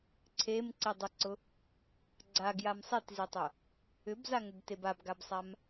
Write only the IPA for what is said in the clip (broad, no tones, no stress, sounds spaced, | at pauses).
ǀʰ e m ǀ i dˤ ʊ ǀ ʊ | ɡ͡ǀ a ɡ j a m sˤ e t z i tˤ ʊ | ʏ b z a ŋ ʏ b t e b a b ɡ a b sˤ a m